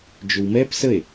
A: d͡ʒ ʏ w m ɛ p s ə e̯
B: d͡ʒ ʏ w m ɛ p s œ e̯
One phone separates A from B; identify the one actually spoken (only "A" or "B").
A